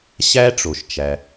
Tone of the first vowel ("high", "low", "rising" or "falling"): high